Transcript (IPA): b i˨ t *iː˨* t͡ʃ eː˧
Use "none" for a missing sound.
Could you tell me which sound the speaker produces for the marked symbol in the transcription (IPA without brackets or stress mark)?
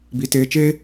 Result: eː˨